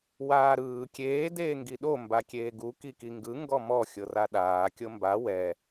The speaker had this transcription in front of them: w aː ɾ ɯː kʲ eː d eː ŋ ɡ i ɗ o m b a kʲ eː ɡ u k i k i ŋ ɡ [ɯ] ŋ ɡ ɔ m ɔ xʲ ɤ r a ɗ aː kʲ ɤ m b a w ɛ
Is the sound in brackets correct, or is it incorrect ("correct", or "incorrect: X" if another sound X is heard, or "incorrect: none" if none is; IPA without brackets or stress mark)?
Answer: correct